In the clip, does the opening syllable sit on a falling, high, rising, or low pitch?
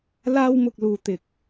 high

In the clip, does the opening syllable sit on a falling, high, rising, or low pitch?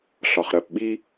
low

